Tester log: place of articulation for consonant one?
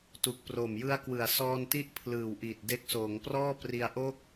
alveolar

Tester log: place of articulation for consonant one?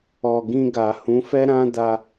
velar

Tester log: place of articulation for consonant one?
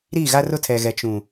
alveolar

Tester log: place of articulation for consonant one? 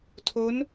alveolar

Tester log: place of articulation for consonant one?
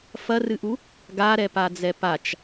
labial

